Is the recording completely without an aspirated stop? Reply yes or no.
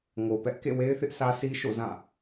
yes